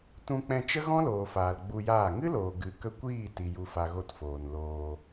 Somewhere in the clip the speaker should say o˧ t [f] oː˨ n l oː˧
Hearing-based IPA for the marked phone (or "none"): f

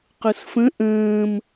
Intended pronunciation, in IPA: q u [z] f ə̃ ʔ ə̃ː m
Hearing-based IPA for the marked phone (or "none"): s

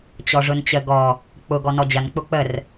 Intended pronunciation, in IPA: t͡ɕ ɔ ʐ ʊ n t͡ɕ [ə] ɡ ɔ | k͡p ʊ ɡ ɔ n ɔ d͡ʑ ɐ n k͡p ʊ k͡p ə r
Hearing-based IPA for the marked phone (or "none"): ə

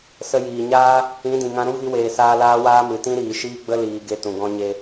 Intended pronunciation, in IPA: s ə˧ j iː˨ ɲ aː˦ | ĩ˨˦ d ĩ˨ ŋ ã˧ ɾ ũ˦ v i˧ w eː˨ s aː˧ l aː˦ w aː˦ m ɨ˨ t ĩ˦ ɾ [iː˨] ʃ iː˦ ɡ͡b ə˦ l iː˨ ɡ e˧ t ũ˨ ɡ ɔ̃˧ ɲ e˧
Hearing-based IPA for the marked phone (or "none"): iː˨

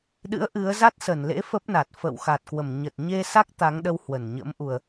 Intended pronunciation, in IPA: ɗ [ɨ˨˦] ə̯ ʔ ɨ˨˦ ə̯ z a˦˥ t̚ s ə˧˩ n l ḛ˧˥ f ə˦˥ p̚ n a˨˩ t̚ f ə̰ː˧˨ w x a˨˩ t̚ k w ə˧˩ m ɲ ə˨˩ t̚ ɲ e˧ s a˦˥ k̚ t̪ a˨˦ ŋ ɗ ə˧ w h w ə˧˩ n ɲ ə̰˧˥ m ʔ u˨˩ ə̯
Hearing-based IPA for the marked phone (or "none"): ɨ̰˧˥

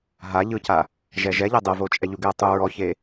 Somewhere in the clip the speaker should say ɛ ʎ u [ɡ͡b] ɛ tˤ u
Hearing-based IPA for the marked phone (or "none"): ɡ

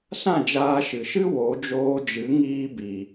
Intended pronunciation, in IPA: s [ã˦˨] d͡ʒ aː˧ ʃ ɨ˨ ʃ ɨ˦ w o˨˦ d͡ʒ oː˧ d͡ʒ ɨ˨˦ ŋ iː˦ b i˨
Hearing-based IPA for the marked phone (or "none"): ã˦˨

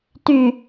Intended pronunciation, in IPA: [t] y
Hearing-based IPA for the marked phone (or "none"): t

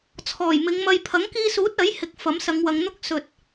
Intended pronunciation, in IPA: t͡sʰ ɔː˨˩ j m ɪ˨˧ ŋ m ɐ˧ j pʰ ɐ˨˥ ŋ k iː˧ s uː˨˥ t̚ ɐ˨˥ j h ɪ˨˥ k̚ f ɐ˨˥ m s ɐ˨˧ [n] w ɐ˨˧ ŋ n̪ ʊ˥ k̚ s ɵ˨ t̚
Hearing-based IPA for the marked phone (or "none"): ŋ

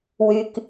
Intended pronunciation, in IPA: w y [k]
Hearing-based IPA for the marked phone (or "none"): k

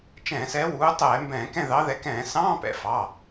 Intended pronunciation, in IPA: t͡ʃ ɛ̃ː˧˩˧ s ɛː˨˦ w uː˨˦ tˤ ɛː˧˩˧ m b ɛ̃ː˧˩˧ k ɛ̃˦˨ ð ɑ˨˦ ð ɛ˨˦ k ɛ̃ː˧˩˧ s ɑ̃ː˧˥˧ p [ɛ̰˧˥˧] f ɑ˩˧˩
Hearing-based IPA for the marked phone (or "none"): ɛ̰˩˧˩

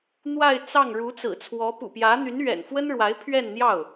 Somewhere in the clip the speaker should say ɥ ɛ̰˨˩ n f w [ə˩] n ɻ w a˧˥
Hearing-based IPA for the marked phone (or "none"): ə˥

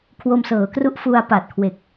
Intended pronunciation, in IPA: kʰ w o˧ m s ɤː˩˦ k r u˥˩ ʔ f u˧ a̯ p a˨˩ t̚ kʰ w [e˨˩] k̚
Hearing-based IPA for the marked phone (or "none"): e˨˩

